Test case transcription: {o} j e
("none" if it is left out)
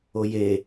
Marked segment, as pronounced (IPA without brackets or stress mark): o